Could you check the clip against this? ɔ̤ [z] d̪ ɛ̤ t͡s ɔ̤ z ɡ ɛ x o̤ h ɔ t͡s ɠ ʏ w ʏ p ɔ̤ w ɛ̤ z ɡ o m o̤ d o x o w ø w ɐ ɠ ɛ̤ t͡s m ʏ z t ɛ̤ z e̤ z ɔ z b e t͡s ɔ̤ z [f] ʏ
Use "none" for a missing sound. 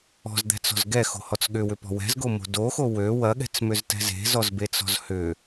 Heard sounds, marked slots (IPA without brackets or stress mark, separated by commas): z, h